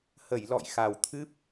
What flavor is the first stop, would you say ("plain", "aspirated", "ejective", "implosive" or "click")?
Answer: aspirated